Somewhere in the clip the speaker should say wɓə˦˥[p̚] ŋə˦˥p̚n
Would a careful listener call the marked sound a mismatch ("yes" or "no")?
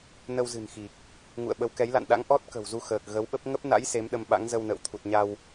no